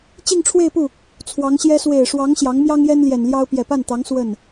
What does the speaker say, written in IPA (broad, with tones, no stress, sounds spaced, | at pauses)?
t͡ɕ i˥˧ ŋ ʈ͡ʂʰ w e˥˧ ɪ̯ p u˥˩ | t͡sʰ w ɑ˧˥ ŋ ɕ j ɛ˥ s w e˨˩ ɪ̯ ʂ w ɑ˧˥ ŋ ɕ j ɑ˧˥ ŋ m j ɑ˥ ŋ j ɛ˥ n l j ɛ˨˩ n l j ɑ˥ ʊ̯ p j ɛ˨˩ p a˥˩ n t̪ ɑ˧˥ ŋ s w ə˥˩ n